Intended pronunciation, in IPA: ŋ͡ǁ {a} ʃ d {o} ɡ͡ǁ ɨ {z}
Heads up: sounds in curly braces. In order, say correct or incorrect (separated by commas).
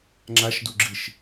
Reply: correct, incorrect, incorrect